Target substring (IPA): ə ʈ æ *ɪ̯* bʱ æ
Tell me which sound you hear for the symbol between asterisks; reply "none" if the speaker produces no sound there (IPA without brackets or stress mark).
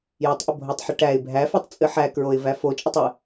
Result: ɪ̯